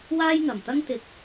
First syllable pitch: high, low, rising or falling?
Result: high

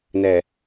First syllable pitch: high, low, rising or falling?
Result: low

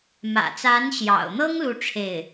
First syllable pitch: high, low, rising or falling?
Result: low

